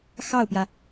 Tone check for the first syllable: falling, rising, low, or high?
falling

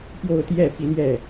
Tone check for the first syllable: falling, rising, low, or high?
falling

